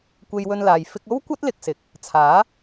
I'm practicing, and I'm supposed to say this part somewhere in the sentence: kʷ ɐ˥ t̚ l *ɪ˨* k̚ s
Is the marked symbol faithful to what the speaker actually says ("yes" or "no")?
no